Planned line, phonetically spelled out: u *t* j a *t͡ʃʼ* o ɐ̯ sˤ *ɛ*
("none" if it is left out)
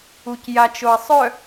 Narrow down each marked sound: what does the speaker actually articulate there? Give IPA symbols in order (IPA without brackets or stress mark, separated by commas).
c, t͡ʃ, œ